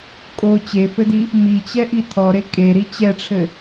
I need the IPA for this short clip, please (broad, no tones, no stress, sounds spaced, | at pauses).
kʼ o t͡ɕ e f ɘ d i | m i t͡ɕ ɛ ʔ i tʰ ɔ ɾ e kʼ e ɾ i t͡ɕ ɛ ʈ͡ʂʰ ɘ